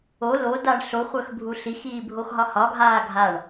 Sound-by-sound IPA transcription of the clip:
o lo daɳɬoχʷœx bʱuɬixiːbʱox ɦɒhɒɡʱaː ɡʱaɳ

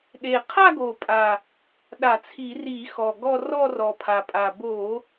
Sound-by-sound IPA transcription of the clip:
ɗe˨˩qʰa˥˧ɡo˨˩pʼa˨˩ | ɗa˧˩˧t͡sʰi˧˩˧ri˧˩˧ xɔ˨˩ɡɔ˥˧ rɔ˥˧rɔ˨˩pʰa˨˩pʼa˨˩ bo˧˩˧

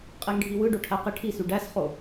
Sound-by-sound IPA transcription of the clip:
qʼeŋɖʱiwɯɖo ʈʰæqiʈʰisy ɖæsχo

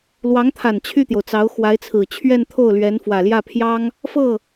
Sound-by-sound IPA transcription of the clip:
lwɑ˧˥ŋt̪ʰa˨˩n t͡ɕʰy˥˩t̪jo˩ʊ̯t͡sɑ˧˥ʊ̯ xwa˧˥ɪ̯t͡sʰɹ̩˨˩ t͡ɕʰɥɛ˥˧nt̪ʰo˥˩ʊ̯lɥɛ˧˥n fwä˨˩ljä˥˩pʰjɑ˥ŋ | fɤ˥˩

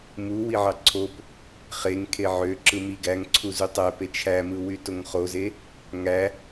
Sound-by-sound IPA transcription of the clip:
muwiʕɑ ǀʰop | χeŋkʰe ʕøǁɯ mi ɡæŋǀʰu zutˤæpe t͡ʃʰæmɯ wytoŋχoze | ŋæ

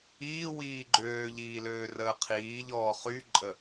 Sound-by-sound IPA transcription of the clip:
iː wiːɡ͡ǃøːʎiːløː rəːqʰiːʎɔː χyǃʼə

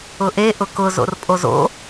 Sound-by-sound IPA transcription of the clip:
ʊʔe ʔʊkʊ zo̰rpʼozo̰

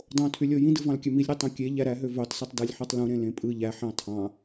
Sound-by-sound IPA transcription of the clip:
dˤõtʰylʲo jĩdɯ vɑ̃lkʲømilʲɾi tˤõkʲe ʎæɾæɦø vøtˤsitˤ dælʲħɯtˤlũ ɾẽlẽpʼɯ ʎæħɑ̃ tʰɑ̃

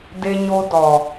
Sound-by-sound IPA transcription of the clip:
de˦ɲo˦ dɔ˨

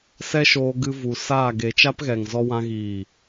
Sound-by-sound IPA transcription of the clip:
sɛ˦ʃoː˧ ɡɨ˧vu˨ saː˦˨ɡe˧ t͡ʃa˦pɣɛ˨ŋzɔ˧wã˧ ɣiː˨

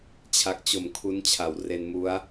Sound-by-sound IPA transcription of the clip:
t͡ɕʰa˨˩k̚t͡ɕo˨˩m kʰu˦˥nt͡ɕʰa˨˩wre˧n mu˦˥a̯

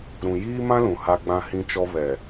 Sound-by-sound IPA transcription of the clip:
ɾũ˨jiː˦mã˦lũ˨ ha˦ɡ͡bã˦hĩ˦t͡ʃɔ˦ βɛ˨

